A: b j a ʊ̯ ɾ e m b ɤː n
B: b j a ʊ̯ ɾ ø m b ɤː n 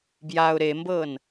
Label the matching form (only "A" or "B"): A